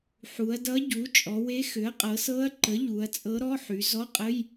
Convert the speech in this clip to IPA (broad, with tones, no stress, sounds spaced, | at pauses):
ħ u˩˧ ɐ̯ d ʌ˧˥ ɟ u˩˥ t͡ʃʼ ɔ˩˧ w e˧˥ x ʏ˩˥ ɐ̯ qʼ ɤ˩˧ s ɤ˧˥ ɐ̯ ǃ ə˩˥ ʎ u˩˧ ɐ̯ t͡sʼ ɤ˧˥ ɾ ɔ˧˥˧ ħ y˩˧ z ɔ˧˥˧ qʼ ə˧˥˧ j